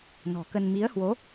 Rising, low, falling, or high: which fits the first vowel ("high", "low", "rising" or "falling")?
low